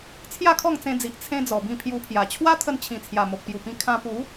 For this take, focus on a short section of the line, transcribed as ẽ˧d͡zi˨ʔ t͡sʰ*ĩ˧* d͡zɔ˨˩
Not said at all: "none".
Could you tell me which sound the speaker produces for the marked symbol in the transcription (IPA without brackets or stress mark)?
ẽ˧